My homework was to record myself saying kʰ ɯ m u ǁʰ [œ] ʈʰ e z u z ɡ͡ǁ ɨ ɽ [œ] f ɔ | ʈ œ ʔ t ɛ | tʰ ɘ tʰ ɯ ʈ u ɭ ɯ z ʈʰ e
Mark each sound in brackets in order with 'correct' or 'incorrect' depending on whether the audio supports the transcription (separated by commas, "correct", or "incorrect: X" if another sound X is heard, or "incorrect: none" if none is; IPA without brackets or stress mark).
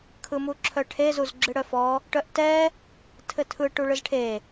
correct, correct